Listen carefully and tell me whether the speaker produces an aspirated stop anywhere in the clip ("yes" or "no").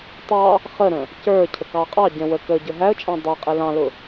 yes